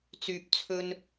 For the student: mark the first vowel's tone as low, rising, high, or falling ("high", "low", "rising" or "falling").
low